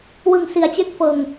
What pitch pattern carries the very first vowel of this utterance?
low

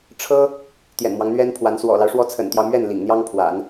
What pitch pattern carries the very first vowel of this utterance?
high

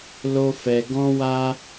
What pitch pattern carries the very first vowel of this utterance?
high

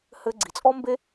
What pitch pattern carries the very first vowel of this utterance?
high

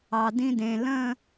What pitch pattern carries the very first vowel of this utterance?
low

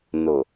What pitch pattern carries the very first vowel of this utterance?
low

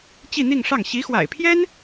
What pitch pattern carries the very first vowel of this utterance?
falling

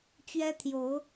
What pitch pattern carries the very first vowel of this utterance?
high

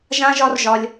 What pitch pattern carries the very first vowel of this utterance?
high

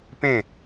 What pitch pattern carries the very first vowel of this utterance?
falling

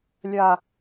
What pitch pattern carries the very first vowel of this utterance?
high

